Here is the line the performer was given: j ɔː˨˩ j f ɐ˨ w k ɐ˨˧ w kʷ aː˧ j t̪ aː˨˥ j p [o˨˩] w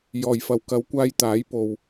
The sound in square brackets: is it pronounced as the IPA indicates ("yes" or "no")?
no